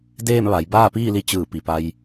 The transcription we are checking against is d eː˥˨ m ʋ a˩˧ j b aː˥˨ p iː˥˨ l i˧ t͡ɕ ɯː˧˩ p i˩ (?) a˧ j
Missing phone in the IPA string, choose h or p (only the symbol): p